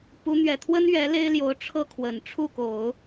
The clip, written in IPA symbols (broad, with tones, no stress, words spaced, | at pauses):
pu˧˥ n̪ɥɛ˨˩t̪ʰwə˥n ɥɛ˧˥le˥ɪ̯ljo˧˥ʊ̯ ʈ͡ʂʰɤ˥˩kʰwə˨˩n ʈ͡ʂʰu˥˩ko˨˩˦ʊ̯